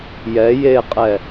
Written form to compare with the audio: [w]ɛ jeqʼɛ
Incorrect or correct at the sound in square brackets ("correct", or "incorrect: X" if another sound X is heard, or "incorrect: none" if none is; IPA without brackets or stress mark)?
incorrect: j